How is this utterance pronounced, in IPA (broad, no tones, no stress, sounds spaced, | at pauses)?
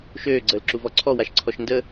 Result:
ʃ øː ɡ͡ǀ əː l ǁ u v ɔ ǀʰ ɔ w a ʃ ǀʰ ɔ ʃ n d ə